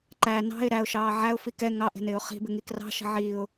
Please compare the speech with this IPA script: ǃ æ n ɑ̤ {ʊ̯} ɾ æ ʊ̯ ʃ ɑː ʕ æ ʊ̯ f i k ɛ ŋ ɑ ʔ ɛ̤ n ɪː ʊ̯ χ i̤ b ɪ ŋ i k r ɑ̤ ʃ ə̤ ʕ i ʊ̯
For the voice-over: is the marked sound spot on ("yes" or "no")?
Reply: no